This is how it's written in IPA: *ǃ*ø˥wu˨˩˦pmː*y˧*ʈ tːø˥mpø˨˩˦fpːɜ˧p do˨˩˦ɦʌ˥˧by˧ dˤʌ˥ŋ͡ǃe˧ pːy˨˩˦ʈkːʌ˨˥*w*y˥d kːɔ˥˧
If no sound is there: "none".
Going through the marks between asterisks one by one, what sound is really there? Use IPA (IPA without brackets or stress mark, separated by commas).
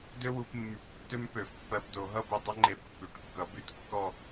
d, y˨˩˦, b